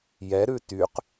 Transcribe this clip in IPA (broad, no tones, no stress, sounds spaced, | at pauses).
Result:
j ɛ ɾ ʉ t y q